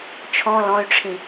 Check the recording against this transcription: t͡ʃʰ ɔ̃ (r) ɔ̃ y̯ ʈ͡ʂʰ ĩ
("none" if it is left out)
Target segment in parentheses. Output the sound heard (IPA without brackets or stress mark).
l